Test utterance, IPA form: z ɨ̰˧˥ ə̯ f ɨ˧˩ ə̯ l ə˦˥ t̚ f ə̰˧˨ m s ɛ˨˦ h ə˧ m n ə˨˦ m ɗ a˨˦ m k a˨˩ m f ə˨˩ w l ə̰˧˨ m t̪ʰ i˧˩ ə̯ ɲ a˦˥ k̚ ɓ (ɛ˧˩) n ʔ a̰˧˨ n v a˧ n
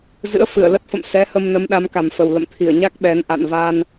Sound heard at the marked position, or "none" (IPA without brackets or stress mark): ɛ˨˦